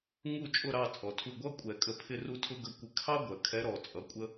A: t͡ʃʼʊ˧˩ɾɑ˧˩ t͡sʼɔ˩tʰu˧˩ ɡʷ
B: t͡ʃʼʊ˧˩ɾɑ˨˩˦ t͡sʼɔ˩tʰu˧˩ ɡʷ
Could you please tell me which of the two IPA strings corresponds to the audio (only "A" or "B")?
A